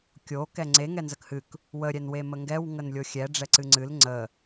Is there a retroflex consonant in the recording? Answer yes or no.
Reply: yes